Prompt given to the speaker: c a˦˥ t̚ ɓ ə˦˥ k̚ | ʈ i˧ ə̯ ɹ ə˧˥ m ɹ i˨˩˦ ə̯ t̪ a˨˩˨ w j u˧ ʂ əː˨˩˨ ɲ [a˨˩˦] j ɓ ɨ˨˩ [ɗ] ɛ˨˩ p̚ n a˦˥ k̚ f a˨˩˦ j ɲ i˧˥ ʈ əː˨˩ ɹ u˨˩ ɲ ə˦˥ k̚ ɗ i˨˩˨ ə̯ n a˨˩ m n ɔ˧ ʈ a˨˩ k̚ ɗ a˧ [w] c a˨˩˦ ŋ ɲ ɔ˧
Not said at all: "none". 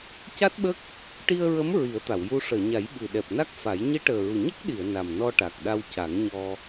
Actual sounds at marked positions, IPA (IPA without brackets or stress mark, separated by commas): a˨˩˦, ɗ, w